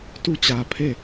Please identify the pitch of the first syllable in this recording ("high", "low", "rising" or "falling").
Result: falling